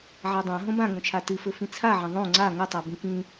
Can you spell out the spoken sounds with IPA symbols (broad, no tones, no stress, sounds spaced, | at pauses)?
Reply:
ʕ a dˤ ã ɦ õ b ã ŋ õ t͡ʃʰ a t ɨ f ɘ f ĩ t͡sʰ a ʕ ɐ̃ ðˤ õ ŋ͡ǀ a ŋ ɘ tˤ a b ĩ k ĩ